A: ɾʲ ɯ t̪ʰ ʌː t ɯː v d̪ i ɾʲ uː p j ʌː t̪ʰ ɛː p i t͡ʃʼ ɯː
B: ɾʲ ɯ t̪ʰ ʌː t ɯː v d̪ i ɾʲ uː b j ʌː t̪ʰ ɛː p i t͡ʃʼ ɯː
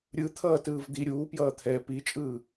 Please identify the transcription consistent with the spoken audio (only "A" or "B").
A